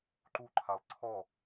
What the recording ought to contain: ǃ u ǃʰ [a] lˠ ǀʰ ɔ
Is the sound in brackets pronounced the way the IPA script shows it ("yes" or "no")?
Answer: yes